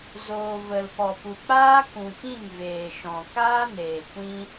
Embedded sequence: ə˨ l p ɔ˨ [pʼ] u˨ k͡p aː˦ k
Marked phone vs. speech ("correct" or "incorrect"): incorrect